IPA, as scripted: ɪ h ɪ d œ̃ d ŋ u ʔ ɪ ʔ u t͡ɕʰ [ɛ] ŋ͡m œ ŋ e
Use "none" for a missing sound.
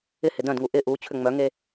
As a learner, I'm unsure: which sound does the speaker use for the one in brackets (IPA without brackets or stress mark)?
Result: ʏ